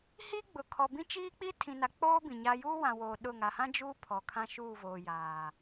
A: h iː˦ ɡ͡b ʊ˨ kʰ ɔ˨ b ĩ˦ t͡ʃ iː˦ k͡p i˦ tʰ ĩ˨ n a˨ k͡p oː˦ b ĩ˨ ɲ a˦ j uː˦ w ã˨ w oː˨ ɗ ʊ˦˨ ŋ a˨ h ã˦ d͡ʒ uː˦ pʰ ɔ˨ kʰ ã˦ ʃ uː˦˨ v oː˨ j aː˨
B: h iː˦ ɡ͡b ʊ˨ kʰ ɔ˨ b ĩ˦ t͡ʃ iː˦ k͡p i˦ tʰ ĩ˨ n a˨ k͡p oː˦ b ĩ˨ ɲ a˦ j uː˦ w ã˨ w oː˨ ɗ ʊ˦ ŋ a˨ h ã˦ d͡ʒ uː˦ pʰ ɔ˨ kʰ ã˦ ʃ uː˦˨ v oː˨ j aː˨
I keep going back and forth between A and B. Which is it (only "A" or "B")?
A